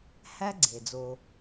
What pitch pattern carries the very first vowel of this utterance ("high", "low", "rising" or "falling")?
high